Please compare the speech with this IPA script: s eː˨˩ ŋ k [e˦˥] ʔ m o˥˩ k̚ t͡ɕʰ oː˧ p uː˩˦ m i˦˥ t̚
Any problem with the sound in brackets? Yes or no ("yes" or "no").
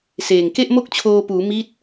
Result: yes